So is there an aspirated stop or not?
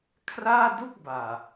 yes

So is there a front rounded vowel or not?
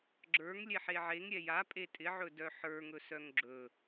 yes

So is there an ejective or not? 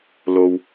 no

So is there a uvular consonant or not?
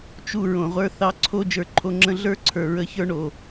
yes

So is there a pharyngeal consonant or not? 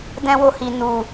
no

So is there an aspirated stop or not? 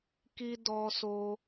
no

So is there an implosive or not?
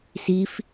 no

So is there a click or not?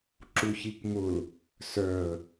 yes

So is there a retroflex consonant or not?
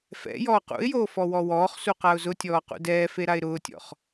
no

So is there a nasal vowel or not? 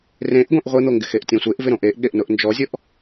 yes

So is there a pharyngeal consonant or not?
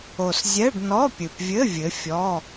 no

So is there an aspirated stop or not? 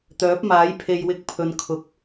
yes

